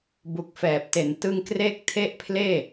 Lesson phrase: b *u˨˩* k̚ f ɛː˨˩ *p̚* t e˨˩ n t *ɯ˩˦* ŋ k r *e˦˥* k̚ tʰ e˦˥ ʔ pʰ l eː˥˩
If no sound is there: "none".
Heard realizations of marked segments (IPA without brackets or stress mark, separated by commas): u˨˩, p̚, ɯ˧, e˦˥